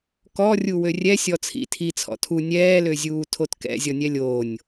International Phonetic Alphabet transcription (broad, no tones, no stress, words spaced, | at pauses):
kɔ rʲuwørʲɛ sʲɔt͡sʰḭ tʰi t͡sʰɔ̰tʰu nʲɛːløzʲuː tʰotkɛ̰ zʲɔnʲɛlʲoːnʲ